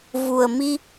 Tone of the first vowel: low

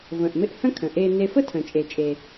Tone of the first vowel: low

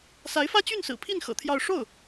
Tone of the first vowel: rising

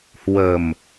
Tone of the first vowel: low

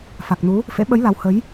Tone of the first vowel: low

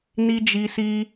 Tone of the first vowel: high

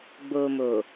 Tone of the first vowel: low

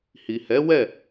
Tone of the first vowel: low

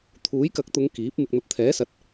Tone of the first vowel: rising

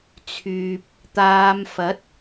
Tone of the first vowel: low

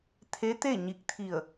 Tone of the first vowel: rising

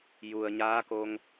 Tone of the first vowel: low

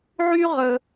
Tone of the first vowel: high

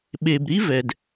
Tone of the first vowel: low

